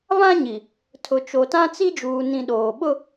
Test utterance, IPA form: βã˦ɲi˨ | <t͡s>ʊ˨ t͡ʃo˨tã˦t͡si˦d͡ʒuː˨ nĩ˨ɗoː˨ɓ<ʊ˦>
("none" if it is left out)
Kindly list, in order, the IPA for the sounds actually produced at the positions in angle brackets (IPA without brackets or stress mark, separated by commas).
tʰ, ʊ˦